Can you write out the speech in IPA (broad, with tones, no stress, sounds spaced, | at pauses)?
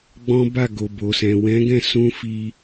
ɡ͡b ɔ̃˦ b a˦˨ ɡ o˨ b o˨ s ɛ̃˨ w ɛ̃˨˦ ɡ ɛ̃˦˨ s ũ˧ f i˧